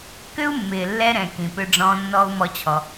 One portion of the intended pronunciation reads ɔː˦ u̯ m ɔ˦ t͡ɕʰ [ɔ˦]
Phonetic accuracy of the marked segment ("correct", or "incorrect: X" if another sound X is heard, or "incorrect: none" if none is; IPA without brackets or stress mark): incorrect: ɔ˧